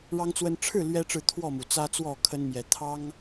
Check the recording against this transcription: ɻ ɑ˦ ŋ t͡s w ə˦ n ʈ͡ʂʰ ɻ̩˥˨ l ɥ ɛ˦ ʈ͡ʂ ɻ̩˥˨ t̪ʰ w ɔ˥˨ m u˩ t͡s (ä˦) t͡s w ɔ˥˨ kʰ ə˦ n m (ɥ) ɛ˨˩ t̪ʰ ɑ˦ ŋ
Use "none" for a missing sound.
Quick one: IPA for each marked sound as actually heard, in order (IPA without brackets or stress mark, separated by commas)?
ä˦, j